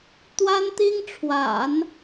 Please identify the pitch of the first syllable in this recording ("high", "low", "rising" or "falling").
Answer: high